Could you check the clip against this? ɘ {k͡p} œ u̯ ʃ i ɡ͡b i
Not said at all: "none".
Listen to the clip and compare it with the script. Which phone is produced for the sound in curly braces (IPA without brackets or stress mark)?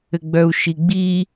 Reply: ɡ͡b